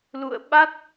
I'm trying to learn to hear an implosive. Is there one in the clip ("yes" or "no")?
yes